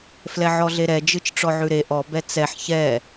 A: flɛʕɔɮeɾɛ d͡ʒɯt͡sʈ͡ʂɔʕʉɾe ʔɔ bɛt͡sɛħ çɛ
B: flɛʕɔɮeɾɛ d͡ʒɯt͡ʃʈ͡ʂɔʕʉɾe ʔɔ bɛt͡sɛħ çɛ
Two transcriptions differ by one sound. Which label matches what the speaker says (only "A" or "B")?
B